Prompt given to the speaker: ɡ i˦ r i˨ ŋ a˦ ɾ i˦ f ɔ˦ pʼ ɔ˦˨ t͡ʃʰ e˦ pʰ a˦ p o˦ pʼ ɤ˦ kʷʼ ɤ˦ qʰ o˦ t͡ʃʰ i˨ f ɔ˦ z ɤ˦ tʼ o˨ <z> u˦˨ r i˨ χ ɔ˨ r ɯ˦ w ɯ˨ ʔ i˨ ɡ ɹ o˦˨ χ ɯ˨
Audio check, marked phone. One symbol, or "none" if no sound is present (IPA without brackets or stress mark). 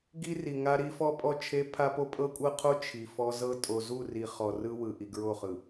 z